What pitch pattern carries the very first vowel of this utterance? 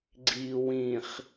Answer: low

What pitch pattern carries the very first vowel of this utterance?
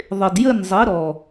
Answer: low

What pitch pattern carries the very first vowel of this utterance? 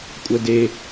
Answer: high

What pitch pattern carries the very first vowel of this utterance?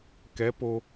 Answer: rising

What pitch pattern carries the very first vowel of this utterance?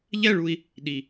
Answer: falling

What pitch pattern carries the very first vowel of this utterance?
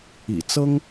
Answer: low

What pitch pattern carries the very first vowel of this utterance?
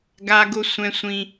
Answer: high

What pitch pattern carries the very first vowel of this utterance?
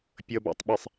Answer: low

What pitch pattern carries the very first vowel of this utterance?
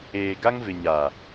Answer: low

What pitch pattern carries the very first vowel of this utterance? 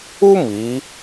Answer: high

